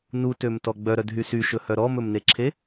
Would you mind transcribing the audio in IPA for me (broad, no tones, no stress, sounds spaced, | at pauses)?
n u t ø m t ɔ ɡ͡b œ ɾ œ d ɦ y s y ʃ ɵ h œ ɾ ɔ m ɵ m n e ǁʰ e